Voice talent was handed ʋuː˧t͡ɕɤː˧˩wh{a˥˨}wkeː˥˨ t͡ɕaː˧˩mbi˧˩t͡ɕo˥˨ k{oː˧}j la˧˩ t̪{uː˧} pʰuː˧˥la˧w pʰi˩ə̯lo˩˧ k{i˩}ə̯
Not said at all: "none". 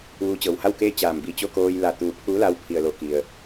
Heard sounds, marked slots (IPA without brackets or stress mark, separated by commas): a˥˨, oː˧, uː˧, i˩